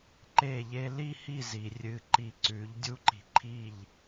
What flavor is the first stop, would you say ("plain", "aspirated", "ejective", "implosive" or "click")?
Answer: click